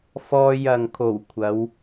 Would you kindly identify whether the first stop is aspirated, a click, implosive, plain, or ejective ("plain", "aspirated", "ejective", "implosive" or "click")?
aspirated